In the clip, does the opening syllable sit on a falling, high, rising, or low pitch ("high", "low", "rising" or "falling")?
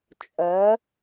rising